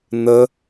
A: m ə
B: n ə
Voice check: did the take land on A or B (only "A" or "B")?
B